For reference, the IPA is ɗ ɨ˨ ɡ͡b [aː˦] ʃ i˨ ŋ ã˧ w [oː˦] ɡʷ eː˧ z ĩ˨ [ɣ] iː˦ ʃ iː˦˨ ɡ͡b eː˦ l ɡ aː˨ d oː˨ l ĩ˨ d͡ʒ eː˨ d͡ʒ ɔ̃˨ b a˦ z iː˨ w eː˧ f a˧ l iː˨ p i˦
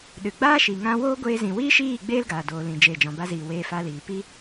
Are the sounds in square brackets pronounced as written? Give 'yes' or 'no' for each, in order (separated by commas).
yes, yes, no